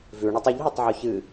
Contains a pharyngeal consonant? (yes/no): yes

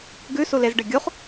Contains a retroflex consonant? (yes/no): yes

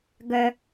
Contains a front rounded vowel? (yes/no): yes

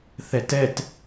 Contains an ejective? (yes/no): no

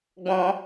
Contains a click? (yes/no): no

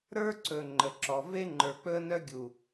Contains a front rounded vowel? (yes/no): yes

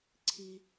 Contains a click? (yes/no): yes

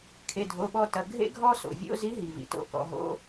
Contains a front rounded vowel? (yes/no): no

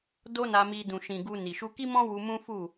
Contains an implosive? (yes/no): no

